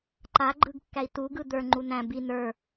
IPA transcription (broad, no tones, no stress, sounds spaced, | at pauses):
ǃ a ɡ͡ǃ ɯ ɡ kː æ i̯ t u ɡ ɯ d̪ ə˞ ŋ͡ǃ u n æ̃ b i n ə˞